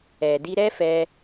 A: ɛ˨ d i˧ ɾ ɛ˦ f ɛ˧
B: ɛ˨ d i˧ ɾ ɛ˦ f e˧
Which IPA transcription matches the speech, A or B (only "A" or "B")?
A